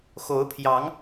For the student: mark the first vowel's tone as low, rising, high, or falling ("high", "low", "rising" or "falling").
rising